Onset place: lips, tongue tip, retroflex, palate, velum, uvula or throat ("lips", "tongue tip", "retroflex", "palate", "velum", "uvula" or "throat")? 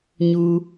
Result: palate